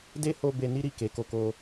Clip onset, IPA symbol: d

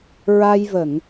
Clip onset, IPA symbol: ɹ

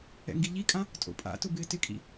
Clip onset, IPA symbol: ɛ̰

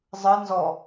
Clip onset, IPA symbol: zˤ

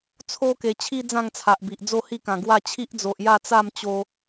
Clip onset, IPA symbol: t͡sʰ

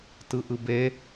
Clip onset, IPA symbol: t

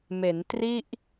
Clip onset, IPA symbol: m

